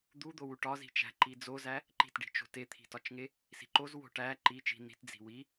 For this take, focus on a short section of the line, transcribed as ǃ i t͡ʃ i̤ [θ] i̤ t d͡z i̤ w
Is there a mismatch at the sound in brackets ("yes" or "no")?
yes